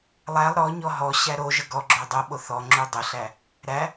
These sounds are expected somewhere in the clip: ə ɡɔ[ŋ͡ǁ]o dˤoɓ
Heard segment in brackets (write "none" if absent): ɡ͡ǁ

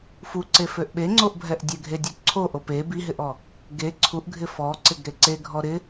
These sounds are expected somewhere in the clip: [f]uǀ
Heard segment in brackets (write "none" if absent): f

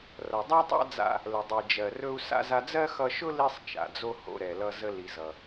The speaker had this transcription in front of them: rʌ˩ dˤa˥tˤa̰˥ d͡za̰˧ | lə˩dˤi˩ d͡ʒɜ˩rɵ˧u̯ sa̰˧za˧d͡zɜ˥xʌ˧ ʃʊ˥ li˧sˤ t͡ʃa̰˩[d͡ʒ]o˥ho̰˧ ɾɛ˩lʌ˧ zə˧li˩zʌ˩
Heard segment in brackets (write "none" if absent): d͡z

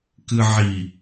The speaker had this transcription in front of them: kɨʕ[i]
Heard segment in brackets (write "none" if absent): i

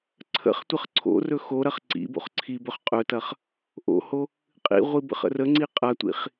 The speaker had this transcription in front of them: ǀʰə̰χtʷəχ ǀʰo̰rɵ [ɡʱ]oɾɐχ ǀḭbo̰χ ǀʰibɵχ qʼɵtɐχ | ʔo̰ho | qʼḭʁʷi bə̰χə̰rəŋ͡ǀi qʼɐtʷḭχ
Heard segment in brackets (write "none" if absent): x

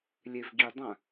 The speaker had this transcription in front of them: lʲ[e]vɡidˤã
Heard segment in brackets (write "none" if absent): e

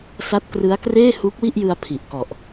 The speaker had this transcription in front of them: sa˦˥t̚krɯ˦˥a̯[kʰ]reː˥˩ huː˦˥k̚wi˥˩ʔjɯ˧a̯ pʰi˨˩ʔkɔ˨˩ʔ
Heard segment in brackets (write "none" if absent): k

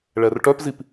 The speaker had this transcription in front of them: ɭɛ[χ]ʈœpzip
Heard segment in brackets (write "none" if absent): r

